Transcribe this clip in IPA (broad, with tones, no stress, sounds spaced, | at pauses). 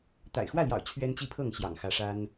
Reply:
t̪ a̰˨˩ ɪ̯ x w ä˥˨ l j ɑ̰˨˩ ʊ̯ t͡ɕʰ ɥ ɛ˦ n t͡ɕ i˥˨ pʰ ɤ˥˨ ŋ ɕ j ɑ̰˨˩ ŋ x ä˨˦ ʂ a˦ n